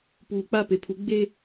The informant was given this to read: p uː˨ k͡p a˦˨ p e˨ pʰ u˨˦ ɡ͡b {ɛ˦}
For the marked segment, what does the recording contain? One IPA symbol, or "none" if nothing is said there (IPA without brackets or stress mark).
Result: e˦